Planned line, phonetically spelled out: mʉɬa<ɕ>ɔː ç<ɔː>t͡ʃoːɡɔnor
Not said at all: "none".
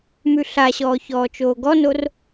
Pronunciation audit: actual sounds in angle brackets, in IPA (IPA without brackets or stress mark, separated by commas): ɕ, ɔː